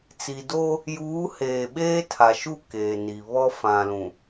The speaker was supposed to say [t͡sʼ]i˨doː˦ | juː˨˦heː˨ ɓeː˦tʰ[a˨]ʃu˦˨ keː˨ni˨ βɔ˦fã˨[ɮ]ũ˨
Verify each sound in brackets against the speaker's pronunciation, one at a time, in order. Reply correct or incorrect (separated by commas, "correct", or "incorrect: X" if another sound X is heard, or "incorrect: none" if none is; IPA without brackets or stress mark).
incorrect: t͡s, correct, incorrect: l